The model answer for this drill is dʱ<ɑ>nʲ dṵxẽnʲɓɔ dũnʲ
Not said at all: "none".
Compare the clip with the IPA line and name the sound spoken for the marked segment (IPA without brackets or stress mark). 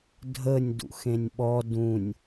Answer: ə